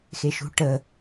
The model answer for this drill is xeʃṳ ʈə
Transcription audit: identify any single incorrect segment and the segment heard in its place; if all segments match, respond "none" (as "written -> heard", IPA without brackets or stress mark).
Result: none